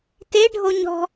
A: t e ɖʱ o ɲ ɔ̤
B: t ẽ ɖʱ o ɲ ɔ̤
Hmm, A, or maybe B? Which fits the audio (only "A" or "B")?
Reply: A